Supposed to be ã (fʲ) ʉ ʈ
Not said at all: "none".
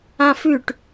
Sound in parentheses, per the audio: f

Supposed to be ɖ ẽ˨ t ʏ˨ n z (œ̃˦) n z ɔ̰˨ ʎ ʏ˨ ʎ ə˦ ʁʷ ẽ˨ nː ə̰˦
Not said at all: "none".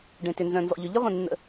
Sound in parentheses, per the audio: œ̃˨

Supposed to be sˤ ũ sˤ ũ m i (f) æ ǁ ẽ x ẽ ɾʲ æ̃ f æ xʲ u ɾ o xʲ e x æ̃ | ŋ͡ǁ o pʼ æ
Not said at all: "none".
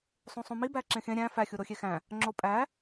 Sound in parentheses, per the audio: b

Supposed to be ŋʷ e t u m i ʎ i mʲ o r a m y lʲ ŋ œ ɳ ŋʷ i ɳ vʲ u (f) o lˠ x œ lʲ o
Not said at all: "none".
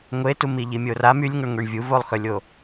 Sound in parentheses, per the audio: v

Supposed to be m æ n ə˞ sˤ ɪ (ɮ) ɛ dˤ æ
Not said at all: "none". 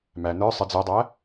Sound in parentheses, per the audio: d͡z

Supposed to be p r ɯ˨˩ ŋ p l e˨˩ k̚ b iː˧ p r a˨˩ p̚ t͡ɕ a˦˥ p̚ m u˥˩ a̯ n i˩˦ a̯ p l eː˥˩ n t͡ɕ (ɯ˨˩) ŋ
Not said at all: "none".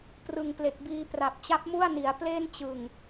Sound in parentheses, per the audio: ɯ˨˩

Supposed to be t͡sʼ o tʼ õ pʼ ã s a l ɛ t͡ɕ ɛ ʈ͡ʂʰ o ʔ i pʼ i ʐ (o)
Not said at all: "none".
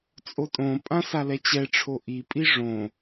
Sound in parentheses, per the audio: õ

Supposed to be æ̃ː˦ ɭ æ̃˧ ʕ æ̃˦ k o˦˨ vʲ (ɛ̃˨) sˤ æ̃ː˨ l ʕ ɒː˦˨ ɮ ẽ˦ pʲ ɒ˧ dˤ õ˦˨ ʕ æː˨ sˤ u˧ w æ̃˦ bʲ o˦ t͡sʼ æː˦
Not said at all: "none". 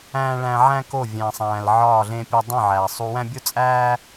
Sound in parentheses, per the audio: æ̃˨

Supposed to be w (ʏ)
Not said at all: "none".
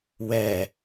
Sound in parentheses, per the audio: ɛ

